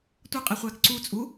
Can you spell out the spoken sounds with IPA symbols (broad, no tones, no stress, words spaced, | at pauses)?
tʷʌqʼiχʷæːk ǀut͡sʼuː